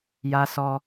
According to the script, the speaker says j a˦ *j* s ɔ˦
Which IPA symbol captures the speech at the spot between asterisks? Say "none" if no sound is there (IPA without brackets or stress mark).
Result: none